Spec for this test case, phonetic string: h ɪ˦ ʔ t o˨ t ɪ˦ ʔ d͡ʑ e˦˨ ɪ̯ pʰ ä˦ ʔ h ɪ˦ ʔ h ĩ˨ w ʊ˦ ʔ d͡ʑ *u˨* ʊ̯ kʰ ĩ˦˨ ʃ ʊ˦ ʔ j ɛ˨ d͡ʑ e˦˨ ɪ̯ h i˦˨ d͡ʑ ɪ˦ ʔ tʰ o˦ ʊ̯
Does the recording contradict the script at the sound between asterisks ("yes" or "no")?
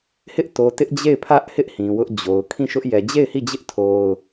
yes